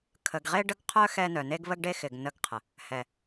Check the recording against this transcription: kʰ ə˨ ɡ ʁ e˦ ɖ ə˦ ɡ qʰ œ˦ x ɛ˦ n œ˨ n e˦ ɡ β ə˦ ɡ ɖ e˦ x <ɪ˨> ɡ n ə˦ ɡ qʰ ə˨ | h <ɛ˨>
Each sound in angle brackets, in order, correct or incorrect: correct, correct

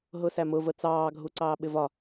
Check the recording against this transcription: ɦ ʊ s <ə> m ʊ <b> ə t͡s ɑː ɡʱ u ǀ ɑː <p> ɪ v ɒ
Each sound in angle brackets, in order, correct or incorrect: incorrect: æ, incorrect: v, incorrect: ɓ

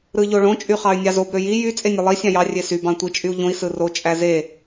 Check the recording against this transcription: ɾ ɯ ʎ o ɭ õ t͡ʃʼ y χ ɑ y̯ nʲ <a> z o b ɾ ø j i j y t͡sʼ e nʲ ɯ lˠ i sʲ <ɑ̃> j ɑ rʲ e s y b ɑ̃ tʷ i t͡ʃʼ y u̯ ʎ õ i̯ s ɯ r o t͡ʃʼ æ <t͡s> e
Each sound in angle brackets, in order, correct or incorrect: incorrect: ɑ, correct, incorrect: z

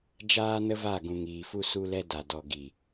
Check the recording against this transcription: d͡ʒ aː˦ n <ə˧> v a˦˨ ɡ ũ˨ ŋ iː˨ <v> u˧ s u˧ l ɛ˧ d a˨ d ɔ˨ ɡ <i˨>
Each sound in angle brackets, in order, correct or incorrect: incorrect: ə˦, incorrect: f, correct

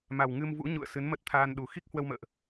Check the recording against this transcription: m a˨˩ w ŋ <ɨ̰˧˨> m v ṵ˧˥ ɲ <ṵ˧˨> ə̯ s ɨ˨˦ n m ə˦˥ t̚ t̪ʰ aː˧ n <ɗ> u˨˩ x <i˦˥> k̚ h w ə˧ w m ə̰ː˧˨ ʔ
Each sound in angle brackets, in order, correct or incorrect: incorrect: ɨ˧, correct, correct, correct

